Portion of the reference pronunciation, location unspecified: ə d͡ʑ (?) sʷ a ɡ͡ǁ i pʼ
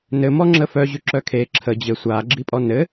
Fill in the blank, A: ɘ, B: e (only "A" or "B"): A